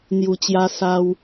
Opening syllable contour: low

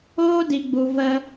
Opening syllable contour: high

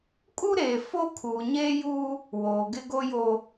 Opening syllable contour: high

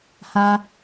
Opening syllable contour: high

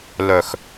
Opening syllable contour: low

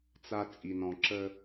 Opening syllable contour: low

